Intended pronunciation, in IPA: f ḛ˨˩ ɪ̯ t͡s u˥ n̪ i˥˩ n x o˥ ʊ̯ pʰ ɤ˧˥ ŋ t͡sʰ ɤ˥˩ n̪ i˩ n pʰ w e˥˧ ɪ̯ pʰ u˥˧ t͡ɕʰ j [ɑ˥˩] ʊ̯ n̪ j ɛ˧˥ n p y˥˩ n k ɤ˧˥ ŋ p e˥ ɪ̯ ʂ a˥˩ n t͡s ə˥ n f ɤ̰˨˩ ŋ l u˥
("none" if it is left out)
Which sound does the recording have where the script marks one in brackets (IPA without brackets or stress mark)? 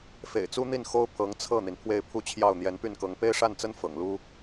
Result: ɑ˥˩